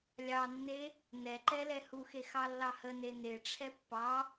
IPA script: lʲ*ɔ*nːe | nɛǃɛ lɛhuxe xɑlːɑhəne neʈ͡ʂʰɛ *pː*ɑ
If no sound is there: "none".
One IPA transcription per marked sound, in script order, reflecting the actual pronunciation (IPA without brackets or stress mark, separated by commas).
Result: ɑ, pː